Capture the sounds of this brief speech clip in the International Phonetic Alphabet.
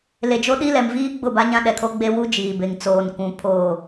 le˨d͡ʒo˦ɗi˦lɛ˨m viː˦ ɡ͡bʊ˦˨ba˦ɲã˦ ɗɛ˨kʰo˦ɡ͡be˦ wu˦ d͡ʒiː˨be˨ŋ t͡soː˨n kʷũ˨ pʰoː˨

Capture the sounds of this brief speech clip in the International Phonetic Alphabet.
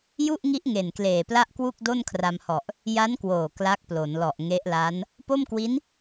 ju˥˩ʔŋi˦˥ʔ ŋe˨˩nkleː˨˩pla˥˩ʔkwu˥˩k̚ do˥˩nkʰra˧mhɔ˨˩ʔ | ja˦˥nkwoː˨˩ kla˦˥k̚plo˩˦nlɔ˨˩ʔ ŋe˦˥ʔla˦˥n | po˥˩mkwi˦˥n

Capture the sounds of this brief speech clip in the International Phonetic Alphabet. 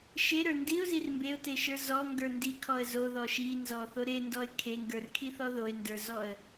ʃeɾə˞ ndiʊ̯zir mbeʊ̯teʃə˞ zɔŋɡə˞ ndikʰɔə̯ zoðɔ ʃinzɔθo ɾendɔɪ̯ kʰeŋɡə˞rkʰiθɔ ðoɪ̯ndə˞zɔə̯

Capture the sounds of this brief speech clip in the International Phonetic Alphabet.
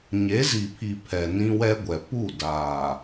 ɲe˨˦zi˨pʰi˨ pʰɛ˨ nĩ˦wɛ˦ɡʷɛ˨ pu˦˨ daː˨

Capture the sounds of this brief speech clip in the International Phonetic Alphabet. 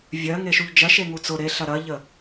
vʲɜ ŋeʃuʎd͡ʒɜʃ eŋut͡sʊ ɾeɬɐ ɾɐʎə

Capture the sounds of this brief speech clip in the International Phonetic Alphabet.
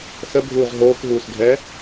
səbʱuːʁ ɦoːkɦuːsɡʱɛː

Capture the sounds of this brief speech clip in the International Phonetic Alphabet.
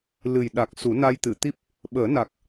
lɨ˨˩jɗa˨˩k̚ su˨˩˦na˧jt̪ɨ˨˩˨t̪i˦˥p̚ | ɓəː˨˩˦na˨˩k̚

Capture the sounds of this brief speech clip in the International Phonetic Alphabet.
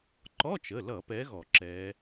ǃɔ˧˥˧t͡ʃə˩˧˩lʌ˧˩˧pɛ˨˦ ɣɔ˧˩˧ǁɛ˨˦

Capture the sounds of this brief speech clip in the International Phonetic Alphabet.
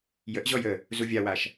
jəʔʑɔj ə | zuvʲawaʃ

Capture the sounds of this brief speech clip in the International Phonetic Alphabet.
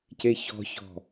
ceçɔ̤çɔ̤

